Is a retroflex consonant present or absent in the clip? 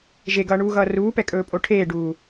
present